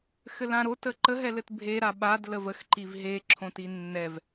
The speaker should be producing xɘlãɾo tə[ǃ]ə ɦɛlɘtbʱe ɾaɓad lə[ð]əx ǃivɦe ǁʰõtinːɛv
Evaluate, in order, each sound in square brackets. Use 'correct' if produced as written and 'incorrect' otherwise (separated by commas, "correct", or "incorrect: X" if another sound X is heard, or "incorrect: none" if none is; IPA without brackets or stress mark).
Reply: correct, incorrect: v